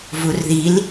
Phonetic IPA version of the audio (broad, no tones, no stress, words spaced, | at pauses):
vurðil